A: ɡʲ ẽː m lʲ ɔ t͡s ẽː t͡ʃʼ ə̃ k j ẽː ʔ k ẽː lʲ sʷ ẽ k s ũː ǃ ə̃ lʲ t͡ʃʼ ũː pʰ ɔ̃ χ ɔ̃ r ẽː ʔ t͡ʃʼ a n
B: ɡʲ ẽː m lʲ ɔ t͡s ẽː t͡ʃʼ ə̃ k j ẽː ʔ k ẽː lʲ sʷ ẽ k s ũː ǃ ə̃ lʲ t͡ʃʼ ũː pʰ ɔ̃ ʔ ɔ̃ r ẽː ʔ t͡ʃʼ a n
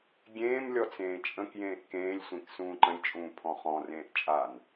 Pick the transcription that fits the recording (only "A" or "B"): A